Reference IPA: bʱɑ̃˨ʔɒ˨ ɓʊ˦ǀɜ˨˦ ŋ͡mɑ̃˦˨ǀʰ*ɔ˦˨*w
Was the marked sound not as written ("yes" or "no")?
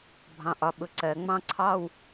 yes